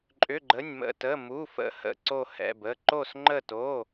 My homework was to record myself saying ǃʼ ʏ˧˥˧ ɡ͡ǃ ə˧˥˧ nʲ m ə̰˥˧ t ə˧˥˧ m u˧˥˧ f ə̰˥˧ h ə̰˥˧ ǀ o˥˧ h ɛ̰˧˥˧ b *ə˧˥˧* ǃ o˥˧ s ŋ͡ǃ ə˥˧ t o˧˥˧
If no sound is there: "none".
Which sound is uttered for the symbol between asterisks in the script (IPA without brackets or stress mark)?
ə˧˥˧